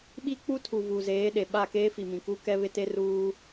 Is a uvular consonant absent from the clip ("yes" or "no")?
yes